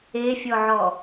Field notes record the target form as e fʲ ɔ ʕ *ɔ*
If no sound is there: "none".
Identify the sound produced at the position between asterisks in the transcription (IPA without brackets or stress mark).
ɔ